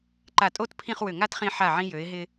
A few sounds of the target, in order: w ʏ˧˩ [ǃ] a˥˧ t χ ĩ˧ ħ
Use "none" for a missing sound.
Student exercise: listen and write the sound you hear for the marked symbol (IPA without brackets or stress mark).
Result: ŋ